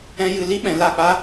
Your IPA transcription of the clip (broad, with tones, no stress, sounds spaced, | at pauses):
ɛ̃˦ j ɨ˧ l i˦ ɓ ɛ̃˨ l a˦˨ k͡p a˦